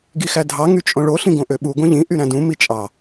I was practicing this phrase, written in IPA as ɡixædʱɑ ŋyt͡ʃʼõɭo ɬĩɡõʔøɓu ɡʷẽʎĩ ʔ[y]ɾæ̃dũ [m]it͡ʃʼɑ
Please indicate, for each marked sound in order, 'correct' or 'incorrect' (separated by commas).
correct, correct